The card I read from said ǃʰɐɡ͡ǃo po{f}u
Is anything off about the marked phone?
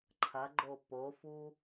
no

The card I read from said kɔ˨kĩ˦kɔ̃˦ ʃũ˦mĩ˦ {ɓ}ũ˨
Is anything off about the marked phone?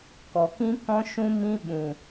no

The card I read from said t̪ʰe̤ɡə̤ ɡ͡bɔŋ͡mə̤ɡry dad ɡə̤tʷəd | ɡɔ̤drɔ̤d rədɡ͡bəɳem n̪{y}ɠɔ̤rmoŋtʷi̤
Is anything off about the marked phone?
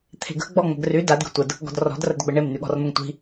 no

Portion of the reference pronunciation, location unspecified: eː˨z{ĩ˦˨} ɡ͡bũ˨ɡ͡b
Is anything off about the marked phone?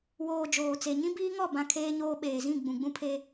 no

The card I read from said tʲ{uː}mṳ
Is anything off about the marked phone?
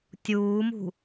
no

